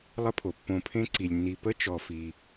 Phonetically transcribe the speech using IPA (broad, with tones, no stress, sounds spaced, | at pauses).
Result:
lˠ ə˦ pʰ o˩ pː õ˨ pʰ ẽ˦ ǀ i˩ lʲ nː i˨ p ə˥ t͡ʃ ɔ˨ f i˩